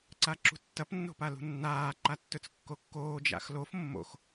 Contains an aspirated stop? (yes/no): no